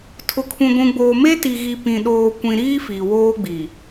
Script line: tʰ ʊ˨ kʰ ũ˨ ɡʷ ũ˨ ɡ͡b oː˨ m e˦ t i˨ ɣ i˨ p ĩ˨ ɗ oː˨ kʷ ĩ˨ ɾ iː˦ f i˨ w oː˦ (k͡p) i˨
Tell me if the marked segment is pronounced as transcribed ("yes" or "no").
no